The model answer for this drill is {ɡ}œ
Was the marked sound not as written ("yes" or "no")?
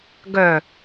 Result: no